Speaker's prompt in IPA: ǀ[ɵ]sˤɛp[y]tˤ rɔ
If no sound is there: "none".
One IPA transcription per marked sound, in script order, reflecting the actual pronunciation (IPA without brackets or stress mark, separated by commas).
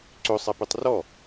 ɵ, y